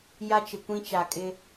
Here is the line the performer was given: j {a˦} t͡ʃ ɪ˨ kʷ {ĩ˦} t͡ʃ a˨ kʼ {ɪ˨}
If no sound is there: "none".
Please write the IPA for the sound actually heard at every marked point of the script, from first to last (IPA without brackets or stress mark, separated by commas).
a˦, ĩ˦, ɪ˦